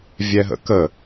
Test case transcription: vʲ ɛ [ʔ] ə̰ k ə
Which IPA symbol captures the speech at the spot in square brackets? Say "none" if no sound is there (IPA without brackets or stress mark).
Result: ɦ